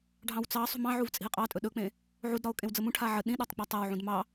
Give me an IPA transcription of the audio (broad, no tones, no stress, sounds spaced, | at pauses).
ɖʱ ɑ̃ w t͡s ɑ sˤ ṳ m ɑ̃ ʕ u v t͡sʼ i̤ e̯ qʼ ɑ tʼ ɵ ɗ ɵ k͡p ẽ | ʕ u d ɾ ɒ o̯ kʼ ẽ w d͡z ə m ũ ʈʰ a ʕ ə ɗ ĩ ɗ ɒ tˤ k͡p ɒ tˤ a w ʕ ũ d m ɑ